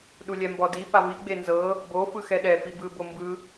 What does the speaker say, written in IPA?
ɗ u lʲ ɛ m b ɔ d i p a v i ɡ͡b e n z ɤ | b o f ɯ x ɛ ɗ ɛ f i b ɯ b o m b ɯ

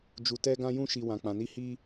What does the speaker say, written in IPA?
d͡ʒ u˨ t ɛ˧ ɡ ã˧ j ũ˧ ʃ i˨ w ã˨ k͡p ã˨ n i˧ h i˧

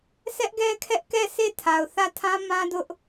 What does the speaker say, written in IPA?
s ɛ˦ ʔ ɡ ɛ˦ kʰ ɛ˦ ʔ k ɛ˦˨ s e˦˨ tʰ a˨ ʊ̯ θ ä˦˨ tʰ ã˦ m ã˦ d ʊ˦ ʔ

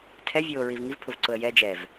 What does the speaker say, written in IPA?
tʰ ɛ vʲ oː ɹ i v ŋ i v pʰ ʊ v ǀ ʊ ə̯ j ɛ d͡ʒ ɛ v

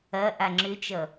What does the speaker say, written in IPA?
ɐ ʔ a ŋ͡ǁ ʏ t͡ʃ ʌ

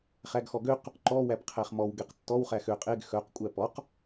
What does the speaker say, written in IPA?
χ æ ɡ x ɔ ɡ ø q | ǃ ɔ w æ p qʰ æ χ m ɔ w ɡ e q tː ɔ w χ æ x ø qʼ e ɡ x œ q kʷʼ æ p ɔ q

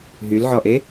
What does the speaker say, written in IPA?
ɦ y l ʕ ɔ ʔ e

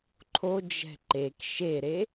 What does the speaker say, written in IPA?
ǃʰ o d͡ʒ ɛ̤ ǃ e k ʃ e ɾ e

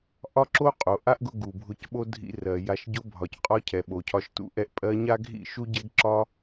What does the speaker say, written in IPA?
ʔ ɒ˦ ǁ o˦ qʼ o˨ ʔ a˦ ʔ ɡ ʊ˧ ɡ u˨ bʱ ʊ˧ c ɓ o˦ dʱ ḭ˧ r ɜ˨ j a˨ ʃ ɟ ʊ˧ bʱ ɒ˨ c qʼ ɒ˧ cʰ ɛ˨ ɓ o˨ cʰ ɒ˧ ʃ t ṵ˦ ʔ ɛ˧ ʔ pʼ ɜ˧ ɲ a˦ ɡʱ ḭ˦˨ ʃ u˦ ɟ ɛ˦ ɡ ǁ ɒ˦

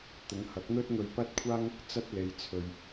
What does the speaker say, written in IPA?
t̪ ʊ˨˧ ŋ h ɐ˨˥ k̚ n̪ ɵ˥ t̚ ŋ ɵ˧ ɥ p ɐ˥ t̚ kʷʰ aː˥ ŋ | t͡s ɐ˥ t̚ l e˨˧ j t͡sʰ ɵ˨ ɥ

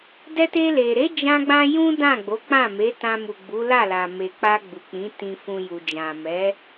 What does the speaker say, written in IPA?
d ɛ˧ t e˧ l e˨ ɾ e˨˦ d͡ʒ ã˦ ɡ͡b ã˦ j ũ˦ d ã˦˨ ɡ͡b o˨˦ k͡p ã˦˨ m e˨˦ t ã˧ m u˨ ɡ͡b u˨˦ l a˦˨ l a˨ m e˨ k͡p a˧ ɡ͡b u˨ k͡p ĩ˨˦ t ĩ˧ f ũ˧ j u˨ d͡ʒ ã˨ m ɛ˨˦

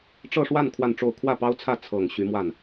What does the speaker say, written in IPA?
ʈ͡ʂ ɤ˥˧ ʂ w a˥˧ n kʰ w a˥˧ n ʈ͡ʂ o˥˧ ʊ̯ kʰ w ä˥˩ p ɑ˥ ʊ̯ t͡sʰ ä˥˩ t͡sʰ ɤ˨˩ ŋ ɕ y˧˥ m w a˥˩ n

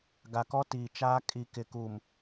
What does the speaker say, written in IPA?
ɡ a˨ k ɔ˦ t iː˨ t͡ʃ aː˦ kʼ i˨ k ɪ˨ k u˨ m

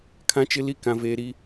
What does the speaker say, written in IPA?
kʰ ã˦ t͡ʃ ɪ˦ l i˦ k ã˦ v eː˦ ɾ i˦

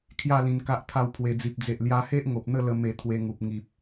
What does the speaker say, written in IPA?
kʰ j a˥˧ l ĩ˧ n k a˦ ʔ t̪ʰ a˥˧ w pʰ w e˧ d͡z i˨ p̚ d͡z e˨ ʔ l j a˧ h e˦ ʔ ŋ o˨ p̚ n̪ ə˥˧ l ə˧ m e˧ t̪ʰ w e˧ ŋ u˨ p̚ ŋ i˨ p̚

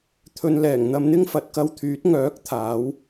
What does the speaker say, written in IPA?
t̪ʰ ɵ˨ n l ɛː˨˩ ŋ n̪ ɐ˧ m n̪ ɪ˥ ŋ f ɐ˨˥ t̚ k ɐ˧ w t̪ʰ yː˨˥ t̚ ŋ œː˨˥ k̚ t̪ʰ aː˨˥ w

